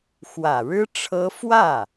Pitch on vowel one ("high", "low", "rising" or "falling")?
low